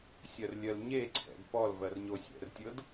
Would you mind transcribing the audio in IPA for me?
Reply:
sʲ ɜ r lʲ ɜ l ɲ e ǀʰ ɛ̰ d p ɔ l v ɜ r ɲ o sʲ ɛ̰ r tʲ ɤ d

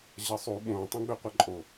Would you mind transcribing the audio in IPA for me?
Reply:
ʑ ɐ sˤ u ɓ õ tˤ õ ɡ͡b ø qʷ ɐ ǃʼ o

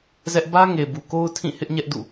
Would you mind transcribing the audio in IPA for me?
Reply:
z ɛ˦ ʔ b ä˦ ŋ e˨ b u˨ k o˦ ʊ̯ tʰ ĩ˦˨ h ɪ˦ ʔ ɲ ɛ˦ ʔ d ṵ˦˨

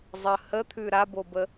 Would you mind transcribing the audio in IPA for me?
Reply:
zˤ ə h ə t̪ʰ ʉ ɾ a b o b ə

